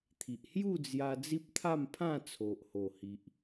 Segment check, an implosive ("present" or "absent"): absent